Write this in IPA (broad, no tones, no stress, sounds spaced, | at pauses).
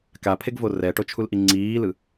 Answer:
k a pʰ e ɡ v o r ɛ ʈ o t͡ʃʰ u l ʔ i ŋ͡ǀ iː l ɯ